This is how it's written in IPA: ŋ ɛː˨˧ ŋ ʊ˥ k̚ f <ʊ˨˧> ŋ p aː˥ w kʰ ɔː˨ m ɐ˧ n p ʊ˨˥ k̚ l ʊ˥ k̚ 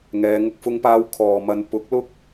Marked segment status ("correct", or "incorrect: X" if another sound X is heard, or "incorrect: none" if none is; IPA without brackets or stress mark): incorrect: ʊ˥